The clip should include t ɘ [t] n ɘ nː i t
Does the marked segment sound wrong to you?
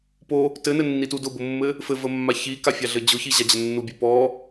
yes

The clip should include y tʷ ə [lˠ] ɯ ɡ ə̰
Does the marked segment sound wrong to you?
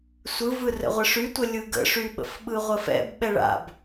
yes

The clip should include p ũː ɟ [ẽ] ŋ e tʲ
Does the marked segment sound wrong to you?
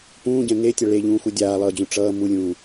yes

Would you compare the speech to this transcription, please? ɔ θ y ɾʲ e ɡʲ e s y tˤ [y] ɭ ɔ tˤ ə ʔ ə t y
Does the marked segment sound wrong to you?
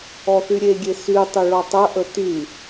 yes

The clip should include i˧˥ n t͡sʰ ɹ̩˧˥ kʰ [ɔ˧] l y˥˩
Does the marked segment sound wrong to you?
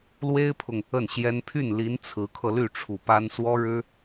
yes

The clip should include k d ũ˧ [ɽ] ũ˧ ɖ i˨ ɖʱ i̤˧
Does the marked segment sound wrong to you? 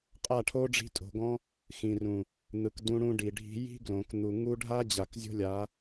no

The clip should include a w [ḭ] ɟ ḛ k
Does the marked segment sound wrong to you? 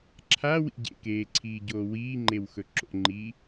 no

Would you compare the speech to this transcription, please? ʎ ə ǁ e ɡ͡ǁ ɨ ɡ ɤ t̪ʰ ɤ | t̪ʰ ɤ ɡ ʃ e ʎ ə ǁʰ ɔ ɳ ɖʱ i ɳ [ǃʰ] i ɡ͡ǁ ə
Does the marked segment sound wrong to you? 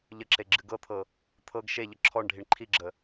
no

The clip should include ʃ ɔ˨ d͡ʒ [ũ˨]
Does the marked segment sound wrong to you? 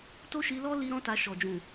no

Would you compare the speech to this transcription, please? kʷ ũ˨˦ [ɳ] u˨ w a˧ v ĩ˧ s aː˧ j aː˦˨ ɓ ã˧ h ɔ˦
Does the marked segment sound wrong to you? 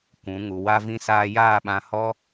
yes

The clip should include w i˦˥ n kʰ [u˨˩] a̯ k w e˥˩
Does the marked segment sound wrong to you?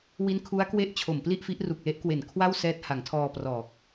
yes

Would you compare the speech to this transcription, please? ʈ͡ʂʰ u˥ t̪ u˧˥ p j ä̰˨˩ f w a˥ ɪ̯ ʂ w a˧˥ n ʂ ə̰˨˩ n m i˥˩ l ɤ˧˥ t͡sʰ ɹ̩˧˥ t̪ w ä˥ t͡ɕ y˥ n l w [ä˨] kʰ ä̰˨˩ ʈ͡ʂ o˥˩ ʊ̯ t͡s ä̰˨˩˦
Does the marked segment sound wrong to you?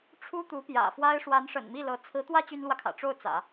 no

